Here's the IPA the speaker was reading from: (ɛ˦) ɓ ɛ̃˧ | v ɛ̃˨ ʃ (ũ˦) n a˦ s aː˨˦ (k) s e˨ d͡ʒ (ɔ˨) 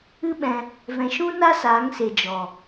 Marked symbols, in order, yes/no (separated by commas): no, yes, no, yes